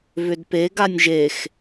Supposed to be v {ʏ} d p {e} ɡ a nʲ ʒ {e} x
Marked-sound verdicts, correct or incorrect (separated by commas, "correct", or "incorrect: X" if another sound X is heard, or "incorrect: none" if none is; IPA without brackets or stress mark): correct, correct, correct